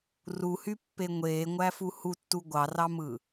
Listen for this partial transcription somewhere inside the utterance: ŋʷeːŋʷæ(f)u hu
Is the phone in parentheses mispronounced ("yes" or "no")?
no